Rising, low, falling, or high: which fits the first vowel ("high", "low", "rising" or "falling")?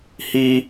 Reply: high